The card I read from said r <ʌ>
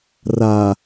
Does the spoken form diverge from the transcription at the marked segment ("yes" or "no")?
yes